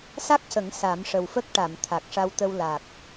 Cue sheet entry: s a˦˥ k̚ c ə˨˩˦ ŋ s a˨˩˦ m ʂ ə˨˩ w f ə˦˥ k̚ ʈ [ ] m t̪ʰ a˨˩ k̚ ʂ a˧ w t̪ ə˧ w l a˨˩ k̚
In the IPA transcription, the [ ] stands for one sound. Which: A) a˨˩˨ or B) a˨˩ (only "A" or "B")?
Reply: A